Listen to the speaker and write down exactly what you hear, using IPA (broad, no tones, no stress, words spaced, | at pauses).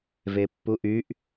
vepːuʔyʔ